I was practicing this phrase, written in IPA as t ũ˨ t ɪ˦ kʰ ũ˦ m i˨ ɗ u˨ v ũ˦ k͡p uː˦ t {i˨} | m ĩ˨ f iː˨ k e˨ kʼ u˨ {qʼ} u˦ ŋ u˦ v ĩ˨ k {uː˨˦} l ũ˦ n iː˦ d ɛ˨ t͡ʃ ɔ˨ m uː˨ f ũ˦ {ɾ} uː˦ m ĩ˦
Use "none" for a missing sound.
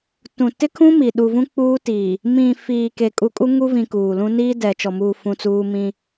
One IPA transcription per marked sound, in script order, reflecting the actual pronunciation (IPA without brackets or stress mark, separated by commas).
iː˨, kʼ, uː˨, t͡s